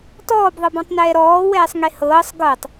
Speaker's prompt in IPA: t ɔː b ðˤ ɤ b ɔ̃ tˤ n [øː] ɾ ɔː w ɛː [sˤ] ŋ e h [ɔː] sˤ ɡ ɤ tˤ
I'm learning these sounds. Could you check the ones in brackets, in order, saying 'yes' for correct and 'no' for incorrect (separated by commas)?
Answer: no, yes, no